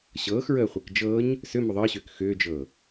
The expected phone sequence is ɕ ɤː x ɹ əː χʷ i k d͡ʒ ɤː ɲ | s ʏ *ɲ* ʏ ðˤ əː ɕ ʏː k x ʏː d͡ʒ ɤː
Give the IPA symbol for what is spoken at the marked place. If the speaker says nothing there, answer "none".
m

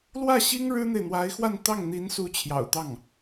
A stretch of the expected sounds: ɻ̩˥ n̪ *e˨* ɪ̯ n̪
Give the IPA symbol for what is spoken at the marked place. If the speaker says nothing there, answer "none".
e˨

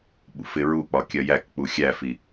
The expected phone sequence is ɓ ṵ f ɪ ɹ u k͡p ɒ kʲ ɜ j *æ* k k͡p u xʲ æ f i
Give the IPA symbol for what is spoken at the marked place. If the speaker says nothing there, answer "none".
æ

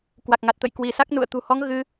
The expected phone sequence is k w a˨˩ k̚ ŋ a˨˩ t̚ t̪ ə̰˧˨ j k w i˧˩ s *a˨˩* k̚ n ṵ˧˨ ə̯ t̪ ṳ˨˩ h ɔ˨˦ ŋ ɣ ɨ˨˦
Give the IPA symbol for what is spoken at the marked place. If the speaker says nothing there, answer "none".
a˦˥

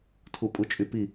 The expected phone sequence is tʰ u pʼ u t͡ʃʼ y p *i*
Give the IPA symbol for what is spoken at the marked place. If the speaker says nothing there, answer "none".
i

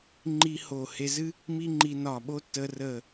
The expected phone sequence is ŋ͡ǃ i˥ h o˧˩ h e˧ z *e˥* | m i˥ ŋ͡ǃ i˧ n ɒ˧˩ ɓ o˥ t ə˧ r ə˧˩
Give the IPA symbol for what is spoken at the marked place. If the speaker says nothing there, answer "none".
ɨ˥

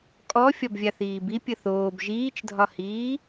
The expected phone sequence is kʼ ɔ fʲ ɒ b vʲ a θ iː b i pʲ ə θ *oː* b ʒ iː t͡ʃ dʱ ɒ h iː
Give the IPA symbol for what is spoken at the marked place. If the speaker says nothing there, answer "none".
oː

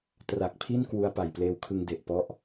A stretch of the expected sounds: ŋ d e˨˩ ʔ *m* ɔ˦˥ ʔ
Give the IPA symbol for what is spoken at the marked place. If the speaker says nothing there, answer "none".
p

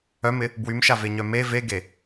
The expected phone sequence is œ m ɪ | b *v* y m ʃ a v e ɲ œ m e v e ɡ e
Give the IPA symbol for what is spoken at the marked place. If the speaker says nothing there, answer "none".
w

